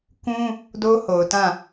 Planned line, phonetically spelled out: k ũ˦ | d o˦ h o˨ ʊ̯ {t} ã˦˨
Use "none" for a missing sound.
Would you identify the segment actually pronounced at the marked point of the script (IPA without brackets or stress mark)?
t